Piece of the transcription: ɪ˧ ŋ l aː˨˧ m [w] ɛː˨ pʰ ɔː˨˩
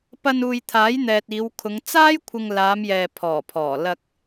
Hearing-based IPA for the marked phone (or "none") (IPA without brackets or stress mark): j